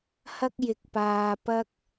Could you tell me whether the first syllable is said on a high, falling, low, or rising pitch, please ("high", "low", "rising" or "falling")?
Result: high